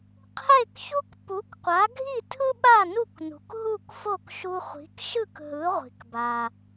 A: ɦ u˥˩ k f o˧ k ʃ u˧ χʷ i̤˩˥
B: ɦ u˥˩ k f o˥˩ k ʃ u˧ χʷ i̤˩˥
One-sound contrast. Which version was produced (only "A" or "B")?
B